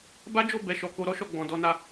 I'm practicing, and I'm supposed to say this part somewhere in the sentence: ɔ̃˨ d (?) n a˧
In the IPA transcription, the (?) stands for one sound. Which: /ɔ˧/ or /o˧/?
ɔ˧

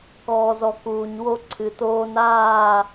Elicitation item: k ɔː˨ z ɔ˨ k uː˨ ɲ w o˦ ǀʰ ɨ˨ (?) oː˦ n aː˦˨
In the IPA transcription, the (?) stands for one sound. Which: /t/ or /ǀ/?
t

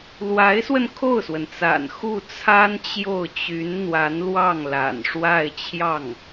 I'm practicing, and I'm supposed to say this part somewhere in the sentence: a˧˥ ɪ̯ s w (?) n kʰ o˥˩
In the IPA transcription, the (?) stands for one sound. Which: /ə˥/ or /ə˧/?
ə˧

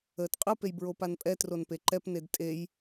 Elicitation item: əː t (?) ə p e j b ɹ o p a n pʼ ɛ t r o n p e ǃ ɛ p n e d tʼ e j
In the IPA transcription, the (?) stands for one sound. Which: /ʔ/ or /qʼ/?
qʼ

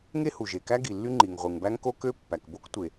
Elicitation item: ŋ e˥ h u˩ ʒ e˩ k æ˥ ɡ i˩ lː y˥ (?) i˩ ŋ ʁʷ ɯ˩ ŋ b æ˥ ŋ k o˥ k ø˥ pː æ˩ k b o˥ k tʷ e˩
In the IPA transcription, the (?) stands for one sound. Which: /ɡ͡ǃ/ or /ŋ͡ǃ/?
ŋ͡ǃ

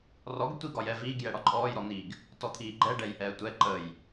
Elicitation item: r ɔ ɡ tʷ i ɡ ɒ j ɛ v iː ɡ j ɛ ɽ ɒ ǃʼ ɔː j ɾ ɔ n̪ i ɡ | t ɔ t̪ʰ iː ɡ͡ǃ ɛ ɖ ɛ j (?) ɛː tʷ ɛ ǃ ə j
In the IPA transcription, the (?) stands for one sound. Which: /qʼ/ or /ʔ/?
ʔ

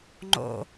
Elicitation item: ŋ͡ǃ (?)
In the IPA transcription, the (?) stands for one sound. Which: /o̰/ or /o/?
o̰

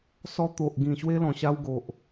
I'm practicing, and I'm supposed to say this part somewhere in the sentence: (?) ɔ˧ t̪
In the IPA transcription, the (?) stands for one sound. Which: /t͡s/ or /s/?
s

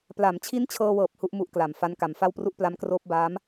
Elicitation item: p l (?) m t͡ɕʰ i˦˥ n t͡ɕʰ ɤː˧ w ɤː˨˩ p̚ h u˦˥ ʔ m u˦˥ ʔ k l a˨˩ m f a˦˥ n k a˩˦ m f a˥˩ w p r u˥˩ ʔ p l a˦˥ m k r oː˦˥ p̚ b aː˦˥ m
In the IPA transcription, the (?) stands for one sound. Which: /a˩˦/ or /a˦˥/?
a˩˦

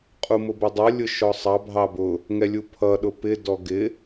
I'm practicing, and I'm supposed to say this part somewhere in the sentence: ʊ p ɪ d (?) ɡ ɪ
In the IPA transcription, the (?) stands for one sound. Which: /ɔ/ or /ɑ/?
ɔ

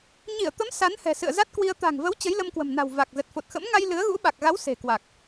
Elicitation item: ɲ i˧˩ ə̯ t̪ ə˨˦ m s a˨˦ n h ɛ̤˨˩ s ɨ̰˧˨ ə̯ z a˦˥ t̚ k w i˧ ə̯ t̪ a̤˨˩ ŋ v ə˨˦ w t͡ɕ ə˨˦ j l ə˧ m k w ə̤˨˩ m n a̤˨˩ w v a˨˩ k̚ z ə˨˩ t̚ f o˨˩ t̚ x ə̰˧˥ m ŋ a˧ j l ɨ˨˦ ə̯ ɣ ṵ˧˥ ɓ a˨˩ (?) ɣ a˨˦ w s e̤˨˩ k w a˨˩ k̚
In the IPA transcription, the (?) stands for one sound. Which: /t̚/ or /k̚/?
k̚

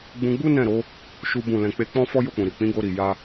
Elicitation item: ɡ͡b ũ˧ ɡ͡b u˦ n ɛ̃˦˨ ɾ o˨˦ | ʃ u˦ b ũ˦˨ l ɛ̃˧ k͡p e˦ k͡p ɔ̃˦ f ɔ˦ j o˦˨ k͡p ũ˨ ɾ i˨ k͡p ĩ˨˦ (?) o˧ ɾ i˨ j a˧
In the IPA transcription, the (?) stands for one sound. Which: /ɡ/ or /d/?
ɡ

